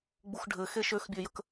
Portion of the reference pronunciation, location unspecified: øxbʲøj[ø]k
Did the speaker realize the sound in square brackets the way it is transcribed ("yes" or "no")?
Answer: no